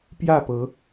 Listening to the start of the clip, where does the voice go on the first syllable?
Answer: falling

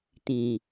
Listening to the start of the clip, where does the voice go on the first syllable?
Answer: low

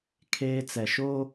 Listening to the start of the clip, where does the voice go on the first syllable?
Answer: high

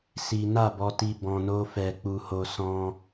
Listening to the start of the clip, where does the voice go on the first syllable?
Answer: high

